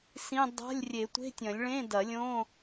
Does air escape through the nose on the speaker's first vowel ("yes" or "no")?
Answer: yes